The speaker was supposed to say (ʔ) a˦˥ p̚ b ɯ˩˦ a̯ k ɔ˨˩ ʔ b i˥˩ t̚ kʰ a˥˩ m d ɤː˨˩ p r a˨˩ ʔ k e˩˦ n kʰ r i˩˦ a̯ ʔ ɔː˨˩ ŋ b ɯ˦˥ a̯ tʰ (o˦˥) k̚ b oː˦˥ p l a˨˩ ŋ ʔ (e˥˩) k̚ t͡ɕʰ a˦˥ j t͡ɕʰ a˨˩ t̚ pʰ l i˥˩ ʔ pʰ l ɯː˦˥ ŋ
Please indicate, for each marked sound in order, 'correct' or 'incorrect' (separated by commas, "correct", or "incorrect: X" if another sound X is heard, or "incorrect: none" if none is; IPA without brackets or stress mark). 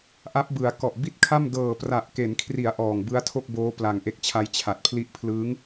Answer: correct, incorrect: o˥˩, incorrect: e˦˥